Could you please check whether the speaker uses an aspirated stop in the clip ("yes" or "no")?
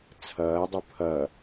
yes